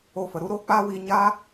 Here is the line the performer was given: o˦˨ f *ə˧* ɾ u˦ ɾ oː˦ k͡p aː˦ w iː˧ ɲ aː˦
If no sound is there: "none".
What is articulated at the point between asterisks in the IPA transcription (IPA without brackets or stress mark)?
ə˧